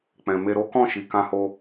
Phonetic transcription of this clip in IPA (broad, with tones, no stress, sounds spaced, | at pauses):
k͡p ɛ̃˨ m e˧ ɾ o˦ k ɔ̃˦˨ ʃ i˨ k ã˧ h o˧